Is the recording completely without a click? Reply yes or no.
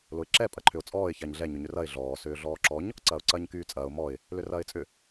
no